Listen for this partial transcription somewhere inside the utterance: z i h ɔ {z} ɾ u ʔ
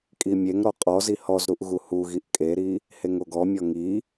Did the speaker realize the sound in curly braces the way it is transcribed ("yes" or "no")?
yes